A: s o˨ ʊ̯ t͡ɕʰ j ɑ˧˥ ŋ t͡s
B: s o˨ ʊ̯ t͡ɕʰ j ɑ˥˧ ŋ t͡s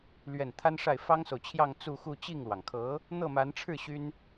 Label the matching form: B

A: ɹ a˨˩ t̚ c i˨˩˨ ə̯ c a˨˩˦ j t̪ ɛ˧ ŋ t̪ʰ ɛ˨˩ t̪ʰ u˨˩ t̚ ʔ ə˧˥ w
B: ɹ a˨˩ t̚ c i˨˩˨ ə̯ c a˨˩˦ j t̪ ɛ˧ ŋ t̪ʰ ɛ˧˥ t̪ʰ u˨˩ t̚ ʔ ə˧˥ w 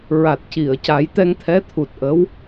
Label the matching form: B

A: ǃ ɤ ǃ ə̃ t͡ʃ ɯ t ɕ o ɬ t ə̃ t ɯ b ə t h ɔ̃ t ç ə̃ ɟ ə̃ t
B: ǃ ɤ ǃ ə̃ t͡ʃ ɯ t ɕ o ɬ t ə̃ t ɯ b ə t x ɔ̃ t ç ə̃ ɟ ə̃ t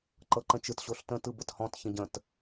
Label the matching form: A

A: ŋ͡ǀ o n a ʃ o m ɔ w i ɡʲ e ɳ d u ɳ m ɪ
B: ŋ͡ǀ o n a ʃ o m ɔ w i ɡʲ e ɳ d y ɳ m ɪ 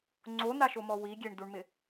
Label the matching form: A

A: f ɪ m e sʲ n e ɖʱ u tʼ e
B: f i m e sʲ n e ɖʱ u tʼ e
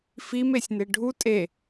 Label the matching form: B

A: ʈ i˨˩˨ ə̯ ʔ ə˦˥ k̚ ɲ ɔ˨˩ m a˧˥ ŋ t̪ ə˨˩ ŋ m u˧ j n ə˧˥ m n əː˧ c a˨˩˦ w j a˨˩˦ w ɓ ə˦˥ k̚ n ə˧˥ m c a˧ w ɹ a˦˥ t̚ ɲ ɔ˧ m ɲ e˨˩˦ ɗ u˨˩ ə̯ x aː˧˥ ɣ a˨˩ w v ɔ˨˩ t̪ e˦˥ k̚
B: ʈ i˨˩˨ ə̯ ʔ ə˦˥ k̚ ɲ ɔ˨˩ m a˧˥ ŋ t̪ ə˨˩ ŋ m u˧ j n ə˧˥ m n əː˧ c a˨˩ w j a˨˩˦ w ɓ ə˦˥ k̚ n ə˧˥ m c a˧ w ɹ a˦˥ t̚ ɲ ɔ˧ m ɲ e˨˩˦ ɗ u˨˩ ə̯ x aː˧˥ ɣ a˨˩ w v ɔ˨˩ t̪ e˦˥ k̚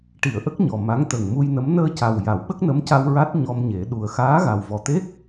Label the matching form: B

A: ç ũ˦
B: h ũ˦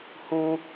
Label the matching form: B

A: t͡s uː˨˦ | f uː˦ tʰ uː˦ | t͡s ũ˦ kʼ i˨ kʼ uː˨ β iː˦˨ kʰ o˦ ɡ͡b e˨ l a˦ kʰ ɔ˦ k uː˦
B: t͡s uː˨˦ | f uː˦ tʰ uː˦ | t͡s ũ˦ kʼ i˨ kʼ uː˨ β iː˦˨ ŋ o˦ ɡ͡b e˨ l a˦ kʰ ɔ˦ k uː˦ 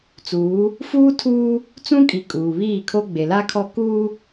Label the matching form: A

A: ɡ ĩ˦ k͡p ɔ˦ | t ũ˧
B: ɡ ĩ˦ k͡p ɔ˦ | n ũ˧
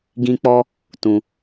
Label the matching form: A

